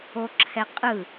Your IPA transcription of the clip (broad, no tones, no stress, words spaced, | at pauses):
oǁʰɛqʼɯ